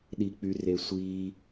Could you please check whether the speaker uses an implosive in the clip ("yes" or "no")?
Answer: yes